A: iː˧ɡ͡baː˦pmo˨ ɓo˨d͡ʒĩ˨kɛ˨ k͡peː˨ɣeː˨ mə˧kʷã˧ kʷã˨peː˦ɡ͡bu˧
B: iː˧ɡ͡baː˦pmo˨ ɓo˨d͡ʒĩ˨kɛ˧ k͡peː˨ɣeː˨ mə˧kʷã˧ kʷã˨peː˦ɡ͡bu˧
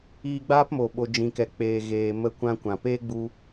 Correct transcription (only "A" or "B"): A